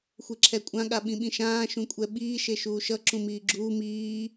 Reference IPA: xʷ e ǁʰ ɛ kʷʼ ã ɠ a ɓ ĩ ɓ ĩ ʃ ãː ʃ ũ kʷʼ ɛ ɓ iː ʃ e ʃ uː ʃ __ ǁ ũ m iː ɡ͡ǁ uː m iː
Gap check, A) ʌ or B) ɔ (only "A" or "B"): A